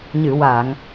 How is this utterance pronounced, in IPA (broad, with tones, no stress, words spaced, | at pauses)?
ɲɨ˨˩˨wa˨˩˨ŋ